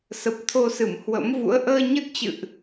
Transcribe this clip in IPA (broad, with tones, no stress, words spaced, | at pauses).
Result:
sə˨˩p̚t̪ʰo˧sɨ˧˩m hwə̰˧˥m vṵ˧˥ə̯ʔəː˧ɲɨ˦˥t̚t͡ɕɨ̰˧˨ʔ